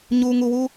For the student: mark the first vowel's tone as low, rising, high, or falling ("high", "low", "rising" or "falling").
low